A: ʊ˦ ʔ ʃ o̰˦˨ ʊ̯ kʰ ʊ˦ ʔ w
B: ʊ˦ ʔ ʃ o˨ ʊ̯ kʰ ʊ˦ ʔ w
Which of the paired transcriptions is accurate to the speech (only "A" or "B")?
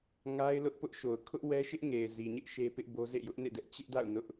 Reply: B